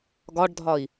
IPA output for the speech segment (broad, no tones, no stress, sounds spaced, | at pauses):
ɡ ɒ ɖ dʱ ɒ i̯